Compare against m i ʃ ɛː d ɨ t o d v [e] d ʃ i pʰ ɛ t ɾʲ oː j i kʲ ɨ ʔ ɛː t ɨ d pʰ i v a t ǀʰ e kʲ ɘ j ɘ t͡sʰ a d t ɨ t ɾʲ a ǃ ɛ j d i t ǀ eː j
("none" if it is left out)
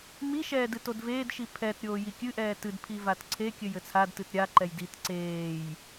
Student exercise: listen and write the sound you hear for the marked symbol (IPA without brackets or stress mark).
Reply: eː